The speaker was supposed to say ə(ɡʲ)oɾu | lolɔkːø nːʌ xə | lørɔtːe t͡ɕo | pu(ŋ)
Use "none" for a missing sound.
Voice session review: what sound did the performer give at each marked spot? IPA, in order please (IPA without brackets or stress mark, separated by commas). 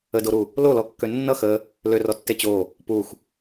d, x